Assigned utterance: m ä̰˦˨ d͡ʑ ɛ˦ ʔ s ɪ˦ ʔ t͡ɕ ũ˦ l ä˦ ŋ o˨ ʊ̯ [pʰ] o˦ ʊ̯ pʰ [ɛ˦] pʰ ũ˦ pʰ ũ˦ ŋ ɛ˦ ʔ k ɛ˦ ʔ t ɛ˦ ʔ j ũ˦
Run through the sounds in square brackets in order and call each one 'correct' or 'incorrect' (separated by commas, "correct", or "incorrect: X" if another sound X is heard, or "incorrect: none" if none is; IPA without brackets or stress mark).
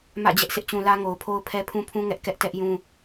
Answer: correct, correct